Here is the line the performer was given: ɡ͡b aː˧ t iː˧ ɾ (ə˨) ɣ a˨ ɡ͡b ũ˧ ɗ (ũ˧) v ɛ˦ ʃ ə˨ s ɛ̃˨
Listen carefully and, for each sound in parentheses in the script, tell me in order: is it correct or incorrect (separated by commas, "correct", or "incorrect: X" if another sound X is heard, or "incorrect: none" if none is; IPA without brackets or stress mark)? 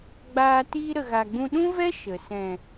correct, incorrect: ũ˦